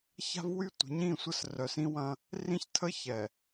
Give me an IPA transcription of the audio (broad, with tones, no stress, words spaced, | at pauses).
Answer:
ça̤˦vwy˦ tʷə̤˨˦ɲĩ˦˨sʷə˦s rœ˨sĩ˦wɐ̃˦ | rĩ˦ç tʰə˦çɛ˨